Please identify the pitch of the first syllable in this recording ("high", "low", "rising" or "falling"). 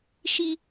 high